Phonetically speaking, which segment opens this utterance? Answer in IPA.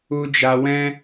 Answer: u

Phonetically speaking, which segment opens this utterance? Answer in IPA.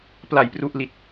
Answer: p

